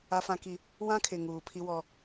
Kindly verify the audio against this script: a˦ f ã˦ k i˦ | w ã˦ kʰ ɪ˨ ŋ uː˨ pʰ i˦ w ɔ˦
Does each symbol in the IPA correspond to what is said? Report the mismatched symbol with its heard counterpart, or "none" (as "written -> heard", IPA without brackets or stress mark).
none